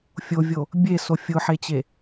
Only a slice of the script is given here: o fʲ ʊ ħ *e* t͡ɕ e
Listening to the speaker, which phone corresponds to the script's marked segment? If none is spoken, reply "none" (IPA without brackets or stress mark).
e